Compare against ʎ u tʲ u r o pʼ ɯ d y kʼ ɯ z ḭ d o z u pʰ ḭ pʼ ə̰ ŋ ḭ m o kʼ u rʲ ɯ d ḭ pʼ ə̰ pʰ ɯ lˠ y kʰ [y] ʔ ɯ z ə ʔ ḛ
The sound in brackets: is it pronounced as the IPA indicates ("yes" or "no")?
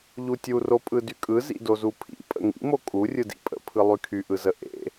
yes